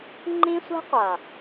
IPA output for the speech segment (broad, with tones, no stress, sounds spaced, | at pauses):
ŋ͡ǃ ĩ˦ sʷ ɛ̤˦ qʷ a˨